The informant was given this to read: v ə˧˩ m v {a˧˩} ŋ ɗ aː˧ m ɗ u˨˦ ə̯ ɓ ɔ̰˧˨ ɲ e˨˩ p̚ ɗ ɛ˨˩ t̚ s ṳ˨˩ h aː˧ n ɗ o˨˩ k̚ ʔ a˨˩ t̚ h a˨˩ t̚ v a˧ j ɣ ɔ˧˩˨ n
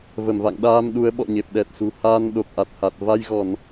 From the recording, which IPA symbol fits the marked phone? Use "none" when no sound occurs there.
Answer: a̰˧˨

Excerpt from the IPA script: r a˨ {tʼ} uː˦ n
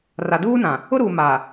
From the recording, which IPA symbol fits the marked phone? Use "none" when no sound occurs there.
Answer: d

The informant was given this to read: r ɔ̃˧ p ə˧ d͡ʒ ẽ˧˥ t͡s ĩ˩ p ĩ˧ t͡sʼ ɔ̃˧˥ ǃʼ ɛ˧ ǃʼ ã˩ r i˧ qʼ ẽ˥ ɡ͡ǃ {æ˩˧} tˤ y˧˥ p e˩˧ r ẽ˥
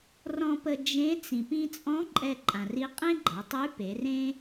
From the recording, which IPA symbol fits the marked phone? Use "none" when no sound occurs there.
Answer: a˩˧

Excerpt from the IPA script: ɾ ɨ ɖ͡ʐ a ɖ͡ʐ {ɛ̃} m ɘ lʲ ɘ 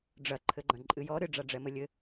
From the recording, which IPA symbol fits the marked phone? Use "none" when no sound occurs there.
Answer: ɛ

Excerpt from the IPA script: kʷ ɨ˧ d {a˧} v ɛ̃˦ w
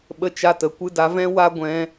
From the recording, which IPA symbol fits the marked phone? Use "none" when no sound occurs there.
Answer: a˧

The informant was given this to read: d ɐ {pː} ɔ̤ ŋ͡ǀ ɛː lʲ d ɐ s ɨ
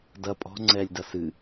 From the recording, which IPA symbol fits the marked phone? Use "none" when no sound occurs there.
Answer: pʼ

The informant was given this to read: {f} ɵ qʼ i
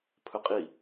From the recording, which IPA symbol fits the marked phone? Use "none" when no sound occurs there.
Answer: pʰ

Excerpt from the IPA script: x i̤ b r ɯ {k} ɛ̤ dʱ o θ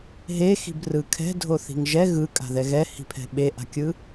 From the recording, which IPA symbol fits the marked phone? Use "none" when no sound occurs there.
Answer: kʰ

